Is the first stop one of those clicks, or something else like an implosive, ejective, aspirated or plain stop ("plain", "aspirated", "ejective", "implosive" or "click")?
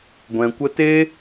plain